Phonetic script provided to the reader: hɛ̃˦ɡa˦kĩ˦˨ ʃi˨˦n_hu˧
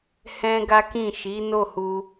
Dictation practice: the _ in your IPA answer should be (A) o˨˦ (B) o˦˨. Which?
B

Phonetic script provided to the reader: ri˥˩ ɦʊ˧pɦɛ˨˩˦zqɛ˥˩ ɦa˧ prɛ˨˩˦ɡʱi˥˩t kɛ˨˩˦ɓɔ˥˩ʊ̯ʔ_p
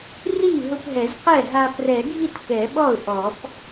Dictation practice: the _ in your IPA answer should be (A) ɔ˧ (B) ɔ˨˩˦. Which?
B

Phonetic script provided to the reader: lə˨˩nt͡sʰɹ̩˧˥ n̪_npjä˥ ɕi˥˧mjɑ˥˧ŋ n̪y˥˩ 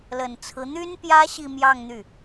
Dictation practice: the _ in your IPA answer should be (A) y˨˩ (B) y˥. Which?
B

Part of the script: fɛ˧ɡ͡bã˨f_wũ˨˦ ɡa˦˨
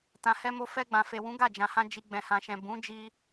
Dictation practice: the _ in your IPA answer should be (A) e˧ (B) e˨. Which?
B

